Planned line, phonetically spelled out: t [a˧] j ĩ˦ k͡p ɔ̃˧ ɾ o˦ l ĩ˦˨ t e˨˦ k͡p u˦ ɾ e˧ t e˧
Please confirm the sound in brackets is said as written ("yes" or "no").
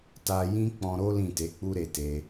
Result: yes